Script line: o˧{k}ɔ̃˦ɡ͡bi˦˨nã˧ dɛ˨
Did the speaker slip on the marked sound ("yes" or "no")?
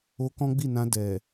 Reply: no